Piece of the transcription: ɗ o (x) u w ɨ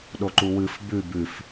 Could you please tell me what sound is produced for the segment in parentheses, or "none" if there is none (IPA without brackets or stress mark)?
ǃ